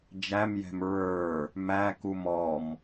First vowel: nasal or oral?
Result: oral